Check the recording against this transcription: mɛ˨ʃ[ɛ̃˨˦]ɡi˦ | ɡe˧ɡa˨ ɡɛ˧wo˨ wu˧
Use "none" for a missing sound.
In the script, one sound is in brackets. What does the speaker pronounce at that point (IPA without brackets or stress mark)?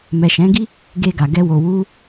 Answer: ɛ̃˨˦